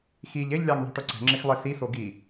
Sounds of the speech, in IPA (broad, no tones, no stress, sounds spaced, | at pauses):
x i ʎ e ʎ lʲ a ŋ ðˤ i̤ ʈ ʊ ǀ ɛ̤ ŋ͡ǁ ɪ x lˠ e s i s o ɡ i